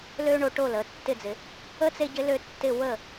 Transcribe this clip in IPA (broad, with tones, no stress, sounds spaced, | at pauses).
l ø˥ ɳ o˨˦ ʈ o˥˩ l ə˨˦ tː ɪ˥˩ d͡z ɪ˨˩˦ | ə˥ t͡s e˥ ɟ ɪ˥ l ø˥˧ tː ɪ˥˧ w ə˥˩